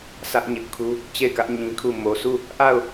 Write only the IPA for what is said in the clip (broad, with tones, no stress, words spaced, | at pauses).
sä˦ʔɲɪ˦ʔkʰu˦ | t͡ɕe˦˨ɪ̯kä˦ʔ ɲĩ˦kʰu˦˨ mo˨su˦˨ | ʔa˦˨ʊ̯